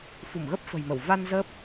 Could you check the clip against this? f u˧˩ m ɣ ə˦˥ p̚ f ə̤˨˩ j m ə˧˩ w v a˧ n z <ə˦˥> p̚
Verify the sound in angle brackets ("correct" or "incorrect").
incorrect